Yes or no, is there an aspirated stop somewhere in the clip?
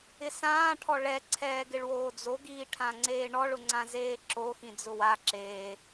yes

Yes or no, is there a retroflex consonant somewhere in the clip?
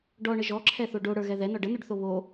yes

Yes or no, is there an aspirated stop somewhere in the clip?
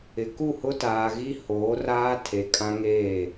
yes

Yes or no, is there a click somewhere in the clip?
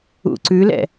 yes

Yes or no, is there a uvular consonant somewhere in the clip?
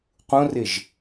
yes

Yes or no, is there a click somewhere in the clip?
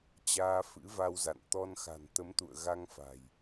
no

